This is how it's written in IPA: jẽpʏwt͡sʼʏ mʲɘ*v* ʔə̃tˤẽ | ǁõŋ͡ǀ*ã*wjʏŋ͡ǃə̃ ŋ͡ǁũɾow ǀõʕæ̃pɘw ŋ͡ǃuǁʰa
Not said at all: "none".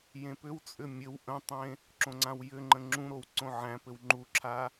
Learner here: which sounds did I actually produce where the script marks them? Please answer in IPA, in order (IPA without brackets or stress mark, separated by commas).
w, ã